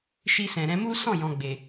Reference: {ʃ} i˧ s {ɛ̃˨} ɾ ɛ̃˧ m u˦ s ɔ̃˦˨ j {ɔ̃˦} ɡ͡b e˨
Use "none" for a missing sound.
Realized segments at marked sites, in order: ʃ, ɛ̃˨, ɔ̃˨

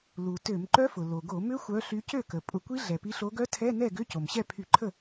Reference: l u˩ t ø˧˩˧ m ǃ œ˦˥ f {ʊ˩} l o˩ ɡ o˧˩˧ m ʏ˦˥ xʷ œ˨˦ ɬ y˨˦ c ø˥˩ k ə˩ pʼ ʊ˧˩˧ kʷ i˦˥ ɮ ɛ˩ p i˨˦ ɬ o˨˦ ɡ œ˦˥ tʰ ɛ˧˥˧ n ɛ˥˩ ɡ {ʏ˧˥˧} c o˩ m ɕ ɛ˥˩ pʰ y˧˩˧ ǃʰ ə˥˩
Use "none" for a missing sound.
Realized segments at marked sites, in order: ʊ˩, ʏ˧˥˧

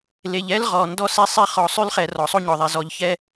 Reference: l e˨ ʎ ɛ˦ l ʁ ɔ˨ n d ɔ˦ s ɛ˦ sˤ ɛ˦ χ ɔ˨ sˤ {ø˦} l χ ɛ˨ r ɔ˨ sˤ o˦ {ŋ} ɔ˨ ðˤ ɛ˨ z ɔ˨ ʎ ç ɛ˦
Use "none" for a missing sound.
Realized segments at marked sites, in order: ʉ˦, ɲ

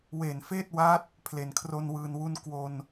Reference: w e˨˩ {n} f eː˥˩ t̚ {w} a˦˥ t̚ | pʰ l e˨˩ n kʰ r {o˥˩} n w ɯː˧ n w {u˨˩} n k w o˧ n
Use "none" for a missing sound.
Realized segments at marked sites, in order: n, w, o˥˩, u˥˩

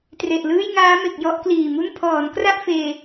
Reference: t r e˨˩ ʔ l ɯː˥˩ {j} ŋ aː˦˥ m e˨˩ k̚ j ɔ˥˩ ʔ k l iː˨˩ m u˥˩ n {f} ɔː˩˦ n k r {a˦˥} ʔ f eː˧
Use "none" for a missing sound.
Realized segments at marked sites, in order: j, pʰ, a˥˩

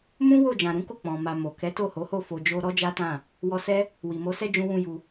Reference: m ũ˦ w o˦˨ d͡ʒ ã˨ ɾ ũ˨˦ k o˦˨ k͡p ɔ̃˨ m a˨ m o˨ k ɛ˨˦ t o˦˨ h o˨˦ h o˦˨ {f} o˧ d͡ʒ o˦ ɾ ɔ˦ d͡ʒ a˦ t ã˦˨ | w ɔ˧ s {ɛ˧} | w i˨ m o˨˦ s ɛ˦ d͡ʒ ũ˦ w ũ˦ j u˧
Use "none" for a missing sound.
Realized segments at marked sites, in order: f, ɛ˦

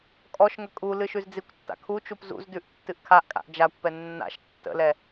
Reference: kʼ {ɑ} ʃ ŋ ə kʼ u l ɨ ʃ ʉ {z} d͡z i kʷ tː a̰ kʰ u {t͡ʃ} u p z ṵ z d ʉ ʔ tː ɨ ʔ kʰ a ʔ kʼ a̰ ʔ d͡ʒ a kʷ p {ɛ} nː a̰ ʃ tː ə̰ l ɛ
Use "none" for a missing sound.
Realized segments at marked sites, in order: ɔ, z, t͡ʃ, ɛ

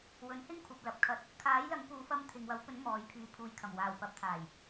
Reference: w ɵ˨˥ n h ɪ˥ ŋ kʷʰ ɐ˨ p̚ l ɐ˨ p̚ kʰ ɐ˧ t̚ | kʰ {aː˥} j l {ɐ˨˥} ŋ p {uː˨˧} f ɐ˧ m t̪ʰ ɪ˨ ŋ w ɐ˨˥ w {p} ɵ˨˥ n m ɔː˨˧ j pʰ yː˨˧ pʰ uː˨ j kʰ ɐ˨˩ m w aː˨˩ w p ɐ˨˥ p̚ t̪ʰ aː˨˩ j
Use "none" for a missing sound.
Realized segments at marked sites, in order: aː˨˥, ɐ˨˥, uː˨˧, p

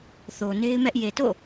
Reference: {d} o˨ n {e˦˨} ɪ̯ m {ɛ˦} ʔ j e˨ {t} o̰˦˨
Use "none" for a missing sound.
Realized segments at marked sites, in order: θ, e˦, ɛ˦, t

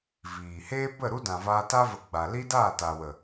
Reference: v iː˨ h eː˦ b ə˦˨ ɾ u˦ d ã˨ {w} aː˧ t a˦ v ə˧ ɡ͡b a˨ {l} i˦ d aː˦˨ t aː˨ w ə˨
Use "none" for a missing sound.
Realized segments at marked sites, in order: v, l

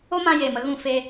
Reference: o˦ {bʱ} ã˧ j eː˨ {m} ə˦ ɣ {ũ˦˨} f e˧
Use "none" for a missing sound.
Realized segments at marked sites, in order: m, m, ũ˦˨

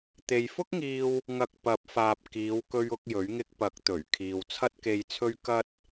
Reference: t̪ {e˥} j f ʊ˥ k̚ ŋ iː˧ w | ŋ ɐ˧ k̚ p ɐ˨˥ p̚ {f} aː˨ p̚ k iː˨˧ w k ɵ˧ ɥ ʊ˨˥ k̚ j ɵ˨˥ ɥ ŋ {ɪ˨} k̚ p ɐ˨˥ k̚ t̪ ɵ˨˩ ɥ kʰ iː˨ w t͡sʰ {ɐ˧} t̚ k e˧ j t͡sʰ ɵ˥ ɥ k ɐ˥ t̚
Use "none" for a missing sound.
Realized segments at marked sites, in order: e˨, f, ɪ˧, ɐ˥

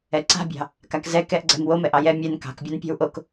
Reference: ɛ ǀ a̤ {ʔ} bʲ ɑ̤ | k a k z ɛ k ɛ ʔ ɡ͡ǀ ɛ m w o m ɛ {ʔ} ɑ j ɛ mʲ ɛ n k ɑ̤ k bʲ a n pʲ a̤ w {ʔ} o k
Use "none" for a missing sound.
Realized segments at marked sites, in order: none, ʔ, ʔ

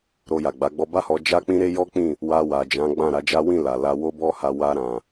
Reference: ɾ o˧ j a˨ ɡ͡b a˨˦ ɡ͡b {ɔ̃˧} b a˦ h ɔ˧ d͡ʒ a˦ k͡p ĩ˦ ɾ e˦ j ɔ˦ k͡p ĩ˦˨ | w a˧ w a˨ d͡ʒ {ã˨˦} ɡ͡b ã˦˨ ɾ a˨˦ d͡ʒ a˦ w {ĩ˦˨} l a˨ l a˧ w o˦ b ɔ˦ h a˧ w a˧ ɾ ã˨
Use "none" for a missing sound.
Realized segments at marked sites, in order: ɔ˧, ã˨˦, ĩ˦˨

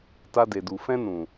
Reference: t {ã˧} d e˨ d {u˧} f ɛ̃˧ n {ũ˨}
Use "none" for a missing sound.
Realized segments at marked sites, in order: a˧, u˨, ũ˨

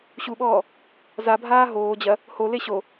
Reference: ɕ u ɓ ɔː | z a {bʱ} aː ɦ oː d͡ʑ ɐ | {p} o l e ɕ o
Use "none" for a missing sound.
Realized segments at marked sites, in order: bʱ, h

